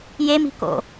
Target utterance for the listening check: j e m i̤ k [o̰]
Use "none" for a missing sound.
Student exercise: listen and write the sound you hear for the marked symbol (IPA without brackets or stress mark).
o̰